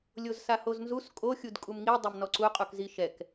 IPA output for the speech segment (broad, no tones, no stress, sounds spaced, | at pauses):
lʲ o z s a h o z n z u s kʼ o xʲ u d kʼ u m ŋ i dˤ ɛ m n ɔ ǀ u qʼ u k z i ʃ ɛ k